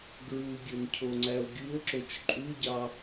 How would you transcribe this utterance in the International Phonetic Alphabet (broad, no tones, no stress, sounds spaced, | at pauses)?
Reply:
ɡ ɹ u ɡʲ ɵ n cʰ o ŋ͡ǀ æ o̯ ɡʲ u o̯ ǁ o t͡ʃ ǃʼ u ɟ ɑ